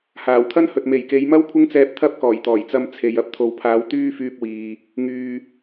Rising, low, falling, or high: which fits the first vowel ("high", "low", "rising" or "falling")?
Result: low